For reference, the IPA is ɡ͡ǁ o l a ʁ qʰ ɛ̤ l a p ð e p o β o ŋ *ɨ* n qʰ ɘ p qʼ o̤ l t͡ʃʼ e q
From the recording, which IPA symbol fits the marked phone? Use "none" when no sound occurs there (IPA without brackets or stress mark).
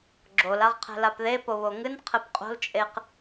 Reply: ɨ